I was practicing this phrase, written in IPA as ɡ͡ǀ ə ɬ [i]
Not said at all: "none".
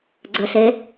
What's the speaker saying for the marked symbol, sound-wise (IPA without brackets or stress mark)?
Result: e